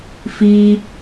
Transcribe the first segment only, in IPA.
f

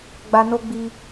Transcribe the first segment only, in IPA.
ɡ͡b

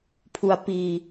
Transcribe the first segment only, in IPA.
pʰ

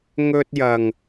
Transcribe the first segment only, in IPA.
ŋ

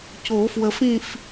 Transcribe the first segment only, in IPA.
c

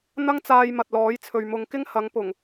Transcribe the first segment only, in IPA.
n̪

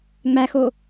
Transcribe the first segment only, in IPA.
ŋ͡m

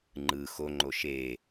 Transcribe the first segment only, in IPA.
ŋ͡ǃ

